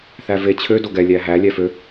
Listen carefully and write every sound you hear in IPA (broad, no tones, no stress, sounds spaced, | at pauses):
θ æ v e t͡ɕʰ ø d o ɡ ɛ lʲ æ ɦ æ lʲ æ f ø